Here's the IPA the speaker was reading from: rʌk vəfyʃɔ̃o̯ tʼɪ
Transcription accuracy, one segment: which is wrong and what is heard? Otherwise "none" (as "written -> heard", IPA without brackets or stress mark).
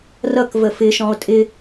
y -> ɪ